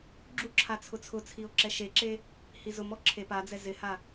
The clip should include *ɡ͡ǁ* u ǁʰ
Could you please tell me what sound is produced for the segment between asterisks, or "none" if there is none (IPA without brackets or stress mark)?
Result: ɡ͡ǁ